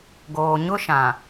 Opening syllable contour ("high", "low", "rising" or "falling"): low